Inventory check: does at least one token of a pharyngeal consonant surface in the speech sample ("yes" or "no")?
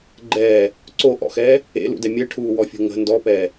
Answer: no